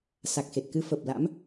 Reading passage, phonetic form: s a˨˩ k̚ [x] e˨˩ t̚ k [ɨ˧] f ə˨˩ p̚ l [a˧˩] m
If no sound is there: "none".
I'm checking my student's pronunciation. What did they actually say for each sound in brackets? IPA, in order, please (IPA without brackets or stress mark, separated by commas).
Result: x, ɨ˧, a̰˧˥